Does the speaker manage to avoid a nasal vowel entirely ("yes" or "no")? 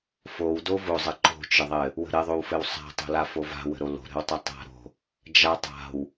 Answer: yes